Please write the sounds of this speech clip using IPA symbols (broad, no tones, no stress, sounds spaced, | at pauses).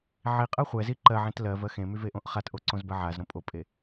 ʕ i qʼ ɜ χʷ ɛ z i ǃ ɜ ʕ ẽ t l ɜ v ɜ x ẽ m y v e ʔ õ ʔ χ a t ʔ o ǀ õ z b ɜ ʕ a z ɾ õ pʼ o pʼ e